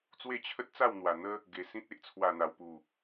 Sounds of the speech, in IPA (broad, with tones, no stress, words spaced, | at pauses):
t͡swe˥˧t͡ɕʰə˦t̚t͡sa˥˧w n̪wa˨˩ n̪ə˦ | ɡe˨˩sĩ˦t̚ e˨ʔt͡sʰwa˨˩n̪a˨˩wpu˨˩